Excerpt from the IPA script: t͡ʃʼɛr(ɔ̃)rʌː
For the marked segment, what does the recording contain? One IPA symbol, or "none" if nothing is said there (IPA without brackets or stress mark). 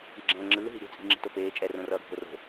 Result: õ